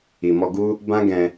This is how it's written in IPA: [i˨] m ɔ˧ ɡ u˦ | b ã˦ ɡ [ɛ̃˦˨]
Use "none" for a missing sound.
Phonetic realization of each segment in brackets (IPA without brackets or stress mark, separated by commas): i˨, ɛ̃˧